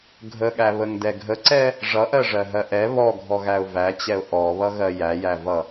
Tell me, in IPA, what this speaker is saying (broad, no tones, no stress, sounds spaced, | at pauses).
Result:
ɡʱ ə ɠ æ β ə ŋ d ɛ ɡʱ ə ǀ ɛ | ʐ ʌ ʔ ɜ ʐ ɜ ɦ ɜ ʔ ɛ β ɔ ɡʱ ɔ ɣ æ ʊ̯ v æ t͡ɕ ɛ ʊ̯ ʔ ɔ β ʌ ɣ ɜ j æ j æ v ʌ